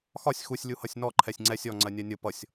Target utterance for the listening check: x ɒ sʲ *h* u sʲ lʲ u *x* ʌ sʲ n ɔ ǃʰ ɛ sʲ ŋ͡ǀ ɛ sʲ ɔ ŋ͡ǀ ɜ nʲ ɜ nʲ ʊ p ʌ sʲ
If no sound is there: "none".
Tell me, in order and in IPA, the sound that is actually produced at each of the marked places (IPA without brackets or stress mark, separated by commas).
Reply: x, h